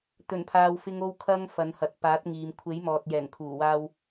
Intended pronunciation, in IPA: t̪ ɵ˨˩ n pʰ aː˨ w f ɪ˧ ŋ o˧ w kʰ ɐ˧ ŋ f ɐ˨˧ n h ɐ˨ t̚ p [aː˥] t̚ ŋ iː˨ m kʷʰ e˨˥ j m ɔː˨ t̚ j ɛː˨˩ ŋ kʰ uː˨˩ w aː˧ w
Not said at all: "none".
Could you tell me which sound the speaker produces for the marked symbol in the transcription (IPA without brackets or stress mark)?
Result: aː˨˥